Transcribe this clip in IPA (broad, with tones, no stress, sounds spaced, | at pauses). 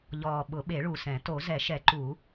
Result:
ʎ ɔː˨˩ ɓ ʊ˨˩˦ ɓ e˨˩˦ ɭ u˨˩ s ɛ̃˨˩˦ t o˨˩˦ z ɛ˨˩˦ ʃ ɛ˨˩˦ ǃ u˨˩˦